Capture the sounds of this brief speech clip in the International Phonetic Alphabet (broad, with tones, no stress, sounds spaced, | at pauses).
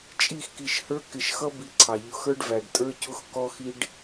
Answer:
t͡ʃʼ i˦˨ x k i˨ ʃ h ə˞˦ k ɪ˨ ʃ x ʌ˦ b i˦ ǀʰ ɑ˨ ʎ ʊ˨ x ə˞˦ ɖ v æ˨ ɖ tʼ ə˞˦ c ʊ˦ x k ɔ˦ x i˦ ɖ